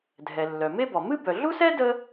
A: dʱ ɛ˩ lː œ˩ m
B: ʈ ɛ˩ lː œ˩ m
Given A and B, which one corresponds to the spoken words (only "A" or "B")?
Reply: A